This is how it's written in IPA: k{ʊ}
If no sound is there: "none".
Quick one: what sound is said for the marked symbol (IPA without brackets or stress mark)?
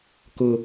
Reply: ʊ